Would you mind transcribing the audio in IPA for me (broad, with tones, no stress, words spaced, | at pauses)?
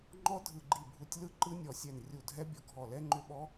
ŋ͡ǃɔ˦˥ dʱɯ˧˩ɡ͡ǃi˧˩bʱu˧˩tʲ lɯ˦˥ǃɯ˦˥ nʲɔ˧˩sʲɛ˧˩n rʲu˧˩dʱɛ˦˥ bʲɔ˧˩ɡʱɔ˧˩lɛ˦˥ ŋ͡ǃʏ˦˥ɓɔ˦˥